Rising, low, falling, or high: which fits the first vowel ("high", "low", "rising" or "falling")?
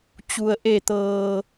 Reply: low